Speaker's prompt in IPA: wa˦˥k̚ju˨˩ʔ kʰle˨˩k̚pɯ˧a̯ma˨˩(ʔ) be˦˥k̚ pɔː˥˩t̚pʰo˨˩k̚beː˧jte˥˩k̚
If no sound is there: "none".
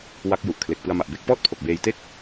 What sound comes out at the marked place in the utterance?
ʔ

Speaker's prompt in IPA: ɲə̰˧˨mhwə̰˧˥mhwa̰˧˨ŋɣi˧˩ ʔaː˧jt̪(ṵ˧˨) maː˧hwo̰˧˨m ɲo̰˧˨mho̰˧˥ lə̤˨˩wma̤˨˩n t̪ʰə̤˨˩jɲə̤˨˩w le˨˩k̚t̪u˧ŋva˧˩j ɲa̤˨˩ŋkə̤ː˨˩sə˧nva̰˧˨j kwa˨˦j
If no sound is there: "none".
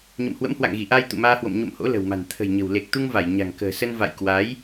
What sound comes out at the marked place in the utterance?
ṵ˧˨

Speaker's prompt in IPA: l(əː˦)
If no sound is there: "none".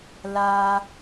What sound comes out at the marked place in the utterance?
aː˦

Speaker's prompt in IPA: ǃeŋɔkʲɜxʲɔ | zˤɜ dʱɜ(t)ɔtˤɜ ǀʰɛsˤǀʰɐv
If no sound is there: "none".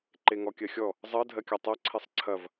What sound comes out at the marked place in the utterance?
kʲ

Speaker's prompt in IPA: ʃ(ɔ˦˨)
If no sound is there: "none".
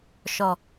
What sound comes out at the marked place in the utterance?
ɔ˨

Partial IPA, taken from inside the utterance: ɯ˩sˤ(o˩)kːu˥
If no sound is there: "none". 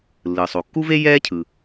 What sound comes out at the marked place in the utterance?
o˩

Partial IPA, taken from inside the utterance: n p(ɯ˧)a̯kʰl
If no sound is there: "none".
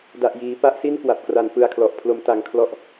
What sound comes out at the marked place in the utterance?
ɯ˧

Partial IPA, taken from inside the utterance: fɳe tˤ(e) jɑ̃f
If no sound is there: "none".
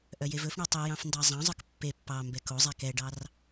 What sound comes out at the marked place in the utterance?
i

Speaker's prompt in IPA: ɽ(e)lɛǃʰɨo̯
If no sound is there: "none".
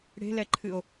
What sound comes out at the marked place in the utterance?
e̤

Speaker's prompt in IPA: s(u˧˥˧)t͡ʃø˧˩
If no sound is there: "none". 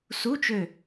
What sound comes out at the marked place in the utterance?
u˧˥˧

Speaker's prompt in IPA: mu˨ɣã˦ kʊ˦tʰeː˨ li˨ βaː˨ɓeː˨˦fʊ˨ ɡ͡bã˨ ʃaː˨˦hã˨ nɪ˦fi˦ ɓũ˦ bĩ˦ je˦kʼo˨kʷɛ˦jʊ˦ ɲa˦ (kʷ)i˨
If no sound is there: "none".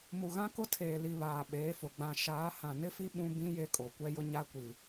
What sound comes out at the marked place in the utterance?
kʷ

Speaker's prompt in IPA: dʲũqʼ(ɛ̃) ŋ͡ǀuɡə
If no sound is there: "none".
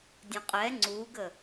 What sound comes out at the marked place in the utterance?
ɛ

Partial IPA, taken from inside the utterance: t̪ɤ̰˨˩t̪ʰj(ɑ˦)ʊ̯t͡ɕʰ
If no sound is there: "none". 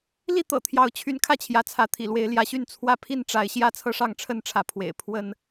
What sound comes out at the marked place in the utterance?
ɑ˨˦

